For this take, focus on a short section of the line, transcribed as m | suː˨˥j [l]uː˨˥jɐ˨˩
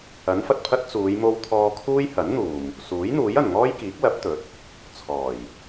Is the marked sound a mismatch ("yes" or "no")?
yes